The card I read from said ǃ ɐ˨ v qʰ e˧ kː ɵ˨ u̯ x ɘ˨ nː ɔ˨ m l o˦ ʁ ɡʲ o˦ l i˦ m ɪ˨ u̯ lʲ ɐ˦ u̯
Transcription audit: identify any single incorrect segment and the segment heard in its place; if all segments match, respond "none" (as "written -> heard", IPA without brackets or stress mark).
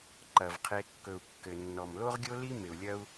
x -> kː